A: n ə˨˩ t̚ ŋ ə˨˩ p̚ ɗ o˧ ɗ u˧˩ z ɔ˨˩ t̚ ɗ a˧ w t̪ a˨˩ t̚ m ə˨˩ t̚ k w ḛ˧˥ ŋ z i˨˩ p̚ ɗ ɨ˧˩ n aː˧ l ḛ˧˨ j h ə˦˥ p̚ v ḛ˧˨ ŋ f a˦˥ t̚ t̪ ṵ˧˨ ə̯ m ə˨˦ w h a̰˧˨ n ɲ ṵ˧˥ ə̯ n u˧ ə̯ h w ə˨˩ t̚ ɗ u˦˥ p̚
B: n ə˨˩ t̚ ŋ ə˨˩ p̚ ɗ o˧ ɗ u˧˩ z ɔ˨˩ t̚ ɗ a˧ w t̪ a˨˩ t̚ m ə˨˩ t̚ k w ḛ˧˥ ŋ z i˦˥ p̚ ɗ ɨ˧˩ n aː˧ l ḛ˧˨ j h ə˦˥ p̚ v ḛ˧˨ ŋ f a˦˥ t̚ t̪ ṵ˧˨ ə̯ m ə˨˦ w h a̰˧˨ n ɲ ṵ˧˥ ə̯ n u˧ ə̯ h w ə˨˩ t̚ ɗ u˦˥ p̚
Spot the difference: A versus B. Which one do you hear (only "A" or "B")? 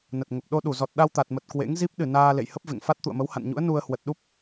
B